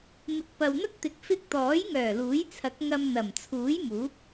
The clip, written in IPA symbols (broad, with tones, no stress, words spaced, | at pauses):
mɪ˨˥k̚pɐ˨wn̪ɐ˥k̚t̪ɪ˨˥k̚ fɪ˧k̚t̪ɔː˨˥jŋœː˨˩ luː˨˥jt͡sʰɐ˨˥k̚ ŋɐ˧m n̪ɐ˨˩m t͡sʰuː˨˥jmuː˨˥p̚